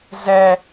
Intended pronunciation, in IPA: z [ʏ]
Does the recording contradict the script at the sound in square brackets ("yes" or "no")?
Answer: yes